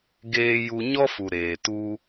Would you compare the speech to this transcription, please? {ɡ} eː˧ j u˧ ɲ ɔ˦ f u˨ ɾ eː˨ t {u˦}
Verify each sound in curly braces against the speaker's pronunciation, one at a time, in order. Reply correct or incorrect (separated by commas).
correct, incorrect